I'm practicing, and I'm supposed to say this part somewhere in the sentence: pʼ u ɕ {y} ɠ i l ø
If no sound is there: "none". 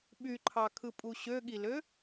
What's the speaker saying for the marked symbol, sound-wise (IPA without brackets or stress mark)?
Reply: ø